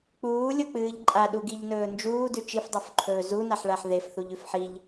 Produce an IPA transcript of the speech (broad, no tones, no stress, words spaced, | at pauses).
k͡puːlʲok͡pɨːʎ ǃʼaɗuɡiʎnɵː nd͡ʒuːdʉ t͡ʃifdˤofǃʰɵː zunaħɭaħ ðefθuʎʉf ħiʎ